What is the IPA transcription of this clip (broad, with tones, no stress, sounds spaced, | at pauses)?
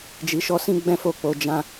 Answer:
d͡ʒ i˧ ʃ ɔ˦ s ĩ˦ ɡ͡b ɛ̃˦ f o˦˨ k͡p o˧ d͡ʒ ã˧